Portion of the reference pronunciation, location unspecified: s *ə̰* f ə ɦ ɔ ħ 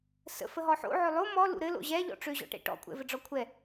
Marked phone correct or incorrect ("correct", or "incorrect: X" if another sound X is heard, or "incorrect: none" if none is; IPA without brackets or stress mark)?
correct